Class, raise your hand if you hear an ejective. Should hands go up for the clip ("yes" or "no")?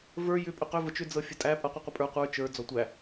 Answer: yes